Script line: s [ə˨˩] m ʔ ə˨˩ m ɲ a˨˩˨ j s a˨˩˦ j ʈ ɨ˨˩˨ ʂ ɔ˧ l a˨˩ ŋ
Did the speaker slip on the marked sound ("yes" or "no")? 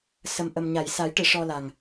no